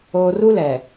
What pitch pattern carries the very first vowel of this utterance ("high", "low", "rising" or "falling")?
low